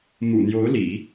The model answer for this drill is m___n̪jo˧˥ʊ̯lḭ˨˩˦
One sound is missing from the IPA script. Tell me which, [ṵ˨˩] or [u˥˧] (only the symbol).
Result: ṵ˨˩